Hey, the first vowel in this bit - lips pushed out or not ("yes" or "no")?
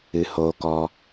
no